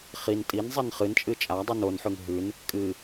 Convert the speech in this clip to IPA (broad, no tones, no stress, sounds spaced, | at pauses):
χ i n tʼ i n zˤ i n χ ɨ n t͡ʃʼ ɨ t͡ʃʼ a dˤ ʉ n o n ħ ʉ ŋ ɦ ʉ n | kʼ ɨ